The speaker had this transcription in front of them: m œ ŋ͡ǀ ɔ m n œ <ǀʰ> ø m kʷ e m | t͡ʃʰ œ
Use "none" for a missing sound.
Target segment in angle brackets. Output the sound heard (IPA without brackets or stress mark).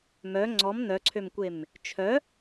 ǀʰ